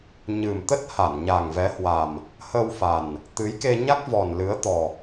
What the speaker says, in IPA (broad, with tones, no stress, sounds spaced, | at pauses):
ɲ ɨ˨˩ m t̪ ə˦˥ t̚ h a˧˩ n ɲ a˨˩ ŋ v ɛ˨˦ h w a˨˩ m | h ə˧ w f a˨˩ n | t̪ ɨ˨˦ j k e˧ ɲ a˦˥ k̚ v ɔ˨˩ n l ɨ˨˦ ə̯ t̪ ɔ˨˩